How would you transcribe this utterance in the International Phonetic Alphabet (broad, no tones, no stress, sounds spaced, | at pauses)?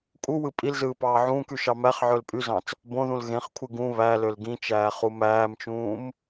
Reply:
kʼ u w ɯ pʼ i l z ɯː p ɑː ʕ ũː k y ʃ ɑ m æ χ ʕ ø l pʼ y z ɑ̃ t͡s | b õ ð ũ l ɣ ẽ χ kʷʰ ɯ ɡ ũ β æ l ø l ɡ ĩ t͡ʃ æː χ u m æː m t͡ʃ ũː m